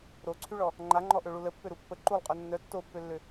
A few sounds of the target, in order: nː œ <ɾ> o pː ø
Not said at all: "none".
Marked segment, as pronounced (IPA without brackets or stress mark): tː